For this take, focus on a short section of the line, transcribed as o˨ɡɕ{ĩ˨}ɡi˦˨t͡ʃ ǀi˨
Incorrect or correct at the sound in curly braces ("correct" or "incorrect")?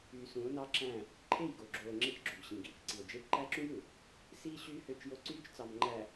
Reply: correct